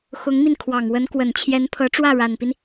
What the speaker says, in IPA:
x ʊ˧˥ ŋ m i˧ n kʰ w ɑ˨˩ ŋ w ə˧˥ n k w ə˨˩ n t͡ɕʰ j ɛ˧˥ n pʰ ɤ˧˥ ʈ͡ʂ w ä˥˩ ɻ a˨˩ n p i˦ n

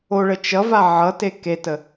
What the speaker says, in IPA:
o ɭ ə t͡ʃ ʌ v a ʕ ʌ t e k e t ə

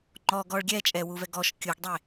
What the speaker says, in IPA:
ŋ͡ǃ ɔ ɡ ɔ ɭ ɡʲ ɛ t͡ʃʼ ɛ w u v ɛ ɡ ɔ ʃ kʲ u ɡ dˤ e

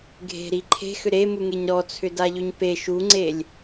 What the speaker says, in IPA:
ɡʱ e̤ ɾ i ǃʰ e̤ x ʏ ɾ e m u ŋ e ɲ ɾ ɔ t͡sʰ ʏ d a ʎ ʏ ɲ p e ʃ u ŋ͡ǀ e lʲ

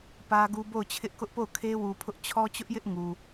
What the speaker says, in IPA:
p ä˦ ɡ u˦ b o˦˨ ʊ̯ t͡ɕʰ ɪ˦ ʔ k ʊ˦ ʔ p o˦˨ ʊ̯ kʰ e˦ w u˨ pʰ ʊ˦ ʔ t͡ɕʰ ɔ˦ t͡ɕ ʊ˦ ʔ j ɪ˦ ʔ ŋ u˨

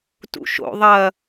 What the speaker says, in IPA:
t ṵ ʃ o̰ ðˤ ɐ

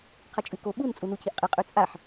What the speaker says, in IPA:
qʰ ɐ t͡ʃʼ ʉ k o ɓ u n t͡sʼ u n u cʰ i ʔ qʼ ɨ qʼ ʉ t͡sʼ a ħ

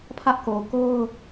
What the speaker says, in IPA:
pʰ ä˦ ʔ k o˨ k o˦ ʊ̯

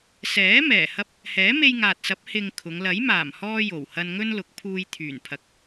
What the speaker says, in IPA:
s ɛː˨˥ m ɛː˨˩ h ɐ˥ p̚ | h ɛː˨˥ m e˧ j ŋ aː˨ t̚ s ɐ˨˥ p̚ h ɪ˨ ŋ kʰ ʊ˨˧ ŋ l ɐ˨˥ j m aː˨˩ m h ɔː˧ j o˨˩ w h ɐ˧ n ŋ ɵ˥ n l ʊ˨˥ k̚ pʰ uː˧ j t̪ʰ yː˨˩ n pʰ ɐ˨ k̚

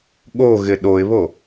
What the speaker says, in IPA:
ɠ o ɣ ɪ ɗ o ɪ̯ β o

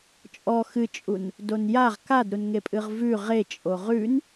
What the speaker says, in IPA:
t͡ʃʼ ɔ x ɨ t͡ʃʼ u n | d o n j a ʁ k a d ɾ u n ŋ e pʼ ɨ ʁ v ʉ ʁ e t͡ʃʼ o ʁ ʉ n

